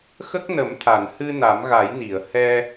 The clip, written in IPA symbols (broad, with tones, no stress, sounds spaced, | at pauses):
x ə˦˥ k̚ n ə˨˩˦ m t̪ʰ a˨˩˨ n h ɨ˧ n a˨˩˦ m ɣ a˨˩˦ j n i˨˩˨ ə̯ h ɛ˧